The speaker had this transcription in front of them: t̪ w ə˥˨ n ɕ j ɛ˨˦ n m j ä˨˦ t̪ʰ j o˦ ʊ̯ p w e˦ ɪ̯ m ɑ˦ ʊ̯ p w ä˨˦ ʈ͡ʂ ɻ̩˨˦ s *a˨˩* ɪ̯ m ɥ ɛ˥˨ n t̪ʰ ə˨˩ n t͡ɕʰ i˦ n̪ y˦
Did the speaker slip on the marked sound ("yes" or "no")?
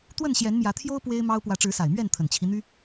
no